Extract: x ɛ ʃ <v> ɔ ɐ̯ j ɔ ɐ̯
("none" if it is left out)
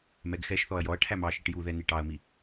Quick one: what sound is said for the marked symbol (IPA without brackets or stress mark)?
θ